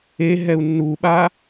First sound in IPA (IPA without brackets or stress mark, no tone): e